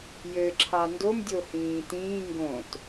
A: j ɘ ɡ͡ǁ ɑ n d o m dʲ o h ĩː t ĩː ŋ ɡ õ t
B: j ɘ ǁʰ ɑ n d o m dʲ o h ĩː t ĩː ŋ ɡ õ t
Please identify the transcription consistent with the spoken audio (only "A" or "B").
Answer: B